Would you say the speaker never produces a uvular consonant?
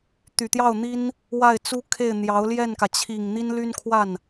yes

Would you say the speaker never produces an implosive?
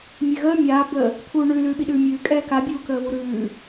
no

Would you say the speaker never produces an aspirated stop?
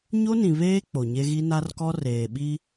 yes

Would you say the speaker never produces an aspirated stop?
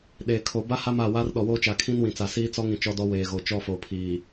no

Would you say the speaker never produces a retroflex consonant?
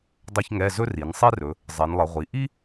yes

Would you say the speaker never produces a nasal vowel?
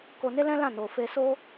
no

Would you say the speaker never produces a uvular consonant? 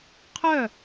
no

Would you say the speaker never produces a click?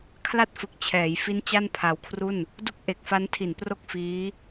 yes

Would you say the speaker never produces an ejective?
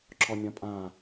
no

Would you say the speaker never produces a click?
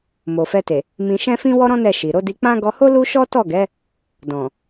yes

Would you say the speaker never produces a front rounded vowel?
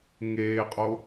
yes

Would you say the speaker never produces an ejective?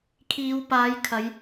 yes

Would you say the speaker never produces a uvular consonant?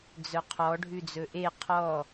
no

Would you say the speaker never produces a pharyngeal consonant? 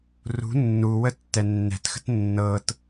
yes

